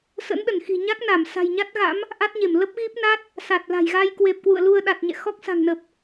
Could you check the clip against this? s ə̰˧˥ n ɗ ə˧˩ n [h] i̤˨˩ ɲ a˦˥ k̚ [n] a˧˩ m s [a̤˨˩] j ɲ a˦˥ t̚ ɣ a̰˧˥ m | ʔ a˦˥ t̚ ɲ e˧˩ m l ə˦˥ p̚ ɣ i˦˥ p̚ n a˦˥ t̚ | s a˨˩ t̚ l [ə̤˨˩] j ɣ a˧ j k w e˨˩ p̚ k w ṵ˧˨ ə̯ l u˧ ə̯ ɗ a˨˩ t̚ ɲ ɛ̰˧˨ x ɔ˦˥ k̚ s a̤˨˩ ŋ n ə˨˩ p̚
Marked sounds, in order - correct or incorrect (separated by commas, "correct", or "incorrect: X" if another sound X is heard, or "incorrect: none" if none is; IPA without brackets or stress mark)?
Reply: incorrect: x, correct, correct, incorrect: a̤˨˩